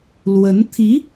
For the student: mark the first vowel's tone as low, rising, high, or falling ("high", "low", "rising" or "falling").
rising